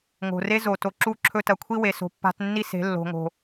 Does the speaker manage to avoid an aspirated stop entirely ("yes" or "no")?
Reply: no